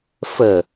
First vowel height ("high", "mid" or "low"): mid